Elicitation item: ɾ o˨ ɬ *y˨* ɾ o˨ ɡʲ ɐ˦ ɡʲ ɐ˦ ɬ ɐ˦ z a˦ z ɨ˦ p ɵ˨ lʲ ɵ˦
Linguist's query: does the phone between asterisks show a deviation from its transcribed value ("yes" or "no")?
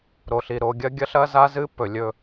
yes